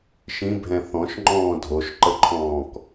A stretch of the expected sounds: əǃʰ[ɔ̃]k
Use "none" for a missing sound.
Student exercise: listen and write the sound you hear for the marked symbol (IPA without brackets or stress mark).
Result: ɔ̃ː